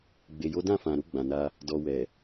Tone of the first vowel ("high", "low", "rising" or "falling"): low